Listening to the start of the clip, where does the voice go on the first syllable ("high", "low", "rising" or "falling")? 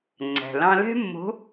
low